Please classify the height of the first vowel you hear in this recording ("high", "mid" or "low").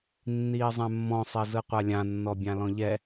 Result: high